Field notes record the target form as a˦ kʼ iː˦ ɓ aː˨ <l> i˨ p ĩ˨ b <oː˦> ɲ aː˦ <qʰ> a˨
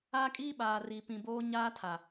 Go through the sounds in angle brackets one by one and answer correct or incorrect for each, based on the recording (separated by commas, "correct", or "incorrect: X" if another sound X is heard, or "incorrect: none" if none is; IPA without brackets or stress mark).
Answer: incorrect: r, correct, incorrect: tʰ